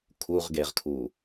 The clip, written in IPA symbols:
kʰuʁɡeʁkʰu

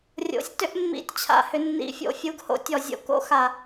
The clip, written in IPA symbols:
rʲo̰˨˥sʲtʏ˥ʔ mːḭ˧˥˧tʲt͡ɕʰa̰˧hʏ˨˥nːḭ˨˥ fʲo̰˧˩˧fʲu˧˥˧ɡho̰˥tʲɔ˧˩˧ zʲo̰˧ko̰˧˥˧xa˧˩˧

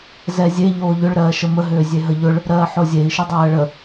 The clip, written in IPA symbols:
zɛzʲe ʎoːʎʏɭ ɾɜːʃəmə ɦʏːzʲeɦəʎʊɭ | ɾɜːħozʲei̯ ʃʏdˤɜːɭə

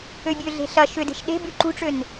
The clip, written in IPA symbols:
øbʲøɮe̤ ɬɐ ʃʏde̤ʃ ɗe̤ byǃṳʈ͡ʂøn

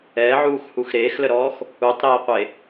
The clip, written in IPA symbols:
ɛːʕuːxhux ɾeːxləɾɔːx | utˤɾeːqʷe

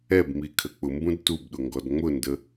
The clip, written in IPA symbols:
ɛbmi kʰək͡pʊmbũd tubɗʊ ŋɡɔdŋ͡mʊndə

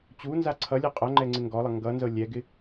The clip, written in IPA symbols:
t͡ɕunza ǀʰʌlʲɤ qʼʌŋ͡ǃɛŋ͡ǀɪ ŋɡɔlˠʌ ŋɡʌnzɤ lʲɛɡɪ

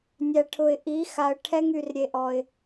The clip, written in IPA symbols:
nʲæ˨ʈʰʊ˨ɪ̯ ʔi˨˦xa˨ə̯ ʈʰɛ˦ŋy˨r ɾʲe˦ʔɔ˦ɪ̯

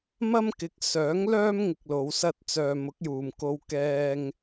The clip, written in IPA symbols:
mɐ˥mkɪ˨k̚ sœː˨˥ŋlœː˥m ŋɪ˧k̚lo˨˧wsɐ˥t̚t͡sœː˧ mʊ˨˥k̚juː˨mko˧w kɛː˧ŋ

